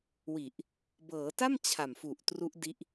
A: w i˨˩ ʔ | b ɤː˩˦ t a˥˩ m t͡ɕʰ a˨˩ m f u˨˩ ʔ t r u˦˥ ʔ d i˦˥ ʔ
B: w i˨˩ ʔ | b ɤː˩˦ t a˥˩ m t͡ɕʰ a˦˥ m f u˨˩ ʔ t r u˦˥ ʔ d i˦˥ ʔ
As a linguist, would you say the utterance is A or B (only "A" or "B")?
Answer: A